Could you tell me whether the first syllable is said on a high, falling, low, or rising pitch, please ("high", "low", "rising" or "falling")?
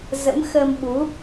rising